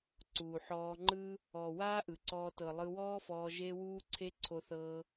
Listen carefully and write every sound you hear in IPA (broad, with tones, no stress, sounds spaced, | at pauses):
ǀ uː˨ ħ ɔː˧ ŋ͡ǃ ɯ˦ | ɔ˨ w aː˦ ʔ ɯ˨ ǀ ɔː˧ t ɤ˨ lˠ ɯ˧ w ɔː˦ f ɔː˧ ʒ e˦ w uː˦ ǀʰ e˦ ǀʰ o˦ θ ɤː˦